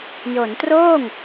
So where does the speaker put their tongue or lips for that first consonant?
palate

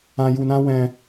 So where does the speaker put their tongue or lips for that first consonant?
palate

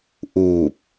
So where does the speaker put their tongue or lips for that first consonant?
throat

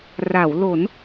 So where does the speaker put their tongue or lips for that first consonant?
tongue tip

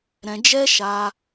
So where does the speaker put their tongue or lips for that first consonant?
tongue tip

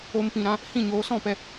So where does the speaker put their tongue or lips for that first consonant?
lips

